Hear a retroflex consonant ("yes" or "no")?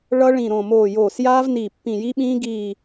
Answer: yes